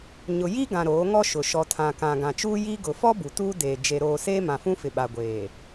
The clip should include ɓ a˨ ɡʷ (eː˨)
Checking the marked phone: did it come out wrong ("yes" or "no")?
no